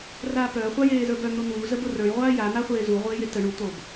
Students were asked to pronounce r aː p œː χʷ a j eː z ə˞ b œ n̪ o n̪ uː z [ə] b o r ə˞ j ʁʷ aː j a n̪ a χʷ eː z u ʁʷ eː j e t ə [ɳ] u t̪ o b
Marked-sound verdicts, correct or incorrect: correct, correct

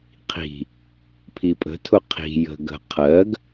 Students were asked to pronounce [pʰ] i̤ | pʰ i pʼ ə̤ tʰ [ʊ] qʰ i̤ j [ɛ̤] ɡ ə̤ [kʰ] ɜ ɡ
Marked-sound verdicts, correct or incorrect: incorrect, correct, incorrect, incorrect

